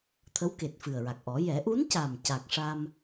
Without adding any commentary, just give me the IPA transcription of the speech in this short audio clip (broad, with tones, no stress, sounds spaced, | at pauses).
t̪ʰ ə˧˥ w k e˨˩ t̚ f ɨ˨˩ ə̯ ɹ a˨˩ k̚ ʔ ɔ˨˩˦ j ɛ˨˩˦ ʔ u˧˥ n c a˨˩ m c a˨˩ k̚ ʂ a˧ m